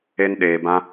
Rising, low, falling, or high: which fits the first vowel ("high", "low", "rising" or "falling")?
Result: high